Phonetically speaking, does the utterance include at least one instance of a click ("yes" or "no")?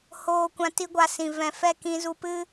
no